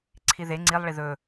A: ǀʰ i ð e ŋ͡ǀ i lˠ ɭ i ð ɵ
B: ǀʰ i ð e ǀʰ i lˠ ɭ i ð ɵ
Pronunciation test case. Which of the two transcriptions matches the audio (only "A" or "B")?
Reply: A